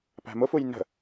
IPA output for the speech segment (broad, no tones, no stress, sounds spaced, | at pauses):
p æ̤ m ʊ f u j n ə̤